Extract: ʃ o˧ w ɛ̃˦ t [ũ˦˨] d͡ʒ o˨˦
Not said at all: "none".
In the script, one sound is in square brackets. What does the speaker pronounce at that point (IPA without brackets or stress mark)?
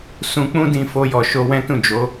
ũ˦˨